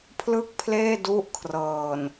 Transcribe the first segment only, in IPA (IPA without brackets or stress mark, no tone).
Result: pʰ